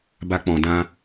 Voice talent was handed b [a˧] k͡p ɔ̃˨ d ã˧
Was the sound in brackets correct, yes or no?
yes